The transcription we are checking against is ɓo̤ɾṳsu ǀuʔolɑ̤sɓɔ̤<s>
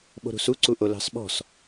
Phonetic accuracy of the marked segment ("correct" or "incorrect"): correct